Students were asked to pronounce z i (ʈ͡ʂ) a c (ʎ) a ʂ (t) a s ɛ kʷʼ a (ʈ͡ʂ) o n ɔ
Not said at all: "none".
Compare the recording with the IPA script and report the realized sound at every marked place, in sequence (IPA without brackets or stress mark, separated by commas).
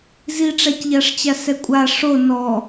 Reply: ʈ͡ʂ, ʎ, t͡ɕ, ʂ